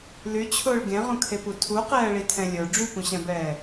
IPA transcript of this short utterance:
l y t͡ɕʰ ʊː ɭ ɡ ẽ ʁ ũ kʰ e p u tʰ u q ɛː ɭ i tʰ ɛ̃ lʲ ə˞ ɖ͡ʐ y p ũ ɕ ɛ̃ b ɛː

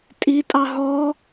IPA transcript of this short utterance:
tʼ i tʼ ɑ ɦ ɔ

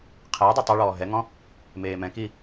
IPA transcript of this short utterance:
qʰ eː dˤ ø tˤ ø ɭ ɔː ɦ ɛ ŋ ɔ̃ | m eː m ɛ̃ k i

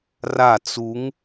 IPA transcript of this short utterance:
r a t͡s u ŋ

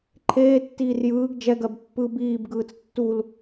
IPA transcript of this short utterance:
ǃʰ eː tː iː r j ɯː ɡ d͡ʒ ɛ ɡ ɜ b pː ɯ b iː b ɡ ɯː t͡s tː u l

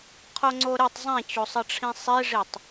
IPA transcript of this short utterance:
qʰ o ŋ͡ǀ o ɾ ɛ tˤ zˤ ẽ t͡ɕ o sˤ ʌ ʈ͡ʂʰ ĩ sˤ i ʐ i tˤ

